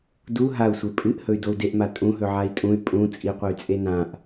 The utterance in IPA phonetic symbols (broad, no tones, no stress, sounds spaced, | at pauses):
d u ɦ a u̯ sʷ e pʼ ɨ ʔ h ɵ y̯ d o u̯ d e ʔ m a tʼ ũ ɦ ɵ ʕ a i̯ tʼ ũ y̯ pʼ ũ t͡sʼ i qʷ ɨ y̯ t͡sʼ e n ã ʔ